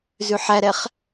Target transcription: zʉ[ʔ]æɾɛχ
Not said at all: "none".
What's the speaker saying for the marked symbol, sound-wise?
ħ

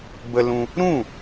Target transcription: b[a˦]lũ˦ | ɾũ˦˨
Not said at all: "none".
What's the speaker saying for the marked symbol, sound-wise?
ə˦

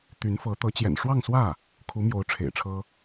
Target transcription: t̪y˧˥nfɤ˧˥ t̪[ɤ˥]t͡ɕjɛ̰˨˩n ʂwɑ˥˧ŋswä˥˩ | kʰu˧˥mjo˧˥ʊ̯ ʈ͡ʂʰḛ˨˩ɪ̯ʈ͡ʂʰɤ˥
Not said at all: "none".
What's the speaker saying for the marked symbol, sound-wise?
ɤ˧˥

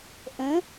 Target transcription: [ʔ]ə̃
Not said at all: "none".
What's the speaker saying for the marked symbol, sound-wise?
ʔ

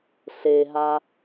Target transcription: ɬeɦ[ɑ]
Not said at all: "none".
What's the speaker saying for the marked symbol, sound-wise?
a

